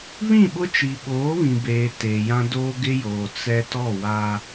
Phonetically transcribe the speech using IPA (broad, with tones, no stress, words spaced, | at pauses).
βĩ˦˨ɓʊ˦ t͡ʃi˨ɓoː˨˦βĩ˨beː˨ teː˨jã˦doː˦ ɡɪ˦joː˨ t͡sɛ˦ tɔ˦˨waː˦